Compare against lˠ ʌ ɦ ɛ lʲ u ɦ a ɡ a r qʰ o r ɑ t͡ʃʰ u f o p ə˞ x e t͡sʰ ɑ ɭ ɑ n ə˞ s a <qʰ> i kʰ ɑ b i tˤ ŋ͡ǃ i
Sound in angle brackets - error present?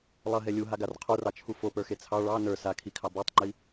yes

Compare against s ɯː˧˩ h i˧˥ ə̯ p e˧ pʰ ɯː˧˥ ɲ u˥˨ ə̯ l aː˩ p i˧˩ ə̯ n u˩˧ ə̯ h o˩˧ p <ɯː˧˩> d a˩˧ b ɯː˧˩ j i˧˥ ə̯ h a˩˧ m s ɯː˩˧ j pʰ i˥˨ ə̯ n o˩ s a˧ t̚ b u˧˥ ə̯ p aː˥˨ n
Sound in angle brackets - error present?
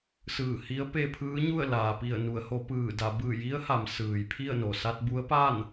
no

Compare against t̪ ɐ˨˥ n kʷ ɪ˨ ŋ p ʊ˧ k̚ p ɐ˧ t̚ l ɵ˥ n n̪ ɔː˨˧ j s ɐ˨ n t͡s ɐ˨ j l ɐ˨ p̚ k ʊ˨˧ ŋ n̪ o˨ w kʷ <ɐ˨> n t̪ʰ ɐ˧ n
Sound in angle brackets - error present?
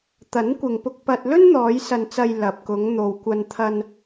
yes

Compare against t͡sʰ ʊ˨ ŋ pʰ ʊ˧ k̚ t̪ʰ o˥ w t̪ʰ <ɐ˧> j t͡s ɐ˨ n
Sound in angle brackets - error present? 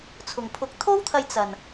no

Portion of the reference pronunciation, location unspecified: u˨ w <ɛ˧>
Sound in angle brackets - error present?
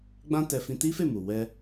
no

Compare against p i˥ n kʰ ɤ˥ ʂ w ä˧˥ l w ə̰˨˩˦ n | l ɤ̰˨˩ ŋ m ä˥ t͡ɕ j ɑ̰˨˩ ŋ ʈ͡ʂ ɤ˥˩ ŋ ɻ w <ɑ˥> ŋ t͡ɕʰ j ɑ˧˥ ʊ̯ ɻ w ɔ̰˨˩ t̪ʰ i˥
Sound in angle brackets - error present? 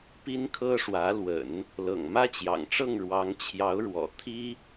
yes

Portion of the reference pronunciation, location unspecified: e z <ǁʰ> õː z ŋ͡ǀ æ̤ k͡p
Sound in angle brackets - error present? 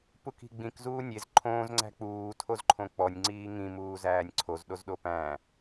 yes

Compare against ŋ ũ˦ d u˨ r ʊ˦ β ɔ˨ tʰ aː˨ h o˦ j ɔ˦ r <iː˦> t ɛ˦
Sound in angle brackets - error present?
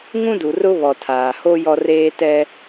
yes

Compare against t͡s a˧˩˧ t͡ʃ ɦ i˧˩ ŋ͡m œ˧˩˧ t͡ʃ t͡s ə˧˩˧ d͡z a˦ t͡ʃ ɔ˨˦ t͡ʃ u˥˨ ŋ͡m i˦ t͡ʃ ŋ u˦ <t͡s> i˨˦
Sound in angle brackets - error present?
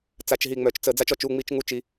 yes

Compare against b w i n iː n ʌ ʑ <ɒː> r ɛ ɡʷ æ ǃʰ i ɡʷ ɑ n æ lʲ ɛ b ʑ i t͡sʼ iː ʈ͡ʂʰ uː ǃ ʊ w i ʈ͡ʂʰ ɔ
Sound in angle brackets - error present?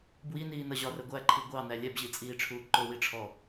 yes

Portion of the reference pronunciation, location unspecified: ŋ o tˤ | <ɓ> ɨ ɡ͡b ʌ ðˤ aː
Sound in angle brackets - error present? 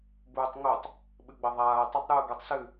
no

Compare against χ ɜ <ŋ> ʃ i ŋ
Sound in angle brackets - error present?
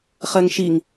no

